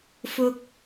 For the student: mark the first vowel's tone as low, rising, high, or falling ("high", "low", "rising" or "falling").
high